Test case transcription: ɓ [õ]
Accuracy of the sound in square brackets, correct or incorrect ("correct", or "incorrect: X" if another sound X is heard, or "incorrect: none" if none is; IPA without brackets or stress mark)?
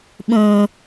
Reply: incorrect: ũ